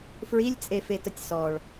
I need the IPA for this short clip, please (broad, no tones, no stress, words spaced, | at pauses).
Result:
fɹilʲt͡sʼefetətʲ sɔɭ